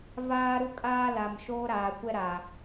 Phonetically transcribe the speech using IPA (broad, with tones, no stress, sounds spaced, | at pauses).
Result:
v aː˦ ɾ u˦ kʼ aː˦ l a˨ m ʃ oː˦ ɾ aː˨ kʷ ɛ˦ ɾ a˨